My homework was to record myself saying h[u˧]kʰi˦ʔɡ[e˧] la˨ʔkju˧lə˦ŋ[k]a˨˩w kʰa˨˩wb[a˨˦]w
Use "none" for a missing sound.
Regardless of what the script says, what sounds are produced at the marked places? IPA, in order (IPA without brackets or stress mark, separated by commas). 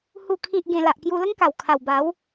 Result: u˥˧, ẽ˧, k, a˨˦